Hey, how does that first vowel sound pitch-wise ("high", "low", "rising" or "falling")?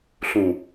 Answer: low